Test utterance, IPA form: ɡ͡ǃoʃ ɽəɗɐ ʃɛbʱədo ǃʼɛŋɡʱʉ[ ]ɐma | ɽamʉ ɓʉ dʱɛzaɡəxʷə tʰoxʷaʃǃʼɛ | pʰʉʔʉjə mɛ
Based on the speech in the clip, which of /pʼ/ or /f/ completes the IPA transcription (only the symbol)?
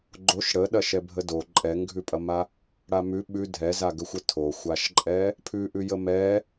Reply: pʼ